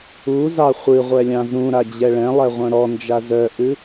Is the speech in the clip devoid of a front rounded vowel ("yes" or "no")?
no